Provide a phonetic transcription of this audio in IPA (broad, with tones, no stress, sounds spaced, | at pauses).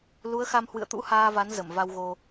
l u˨˦ ə̯ x a˧ m h w ɨ̰˧˨ ə̯ t̪ ṵ˧˥ h aː˧ v a˨˦ n z ə˧˩ m v a˧ w ɣ o˧